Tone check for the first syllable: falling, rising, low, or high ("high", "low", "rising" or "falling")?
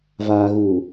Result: low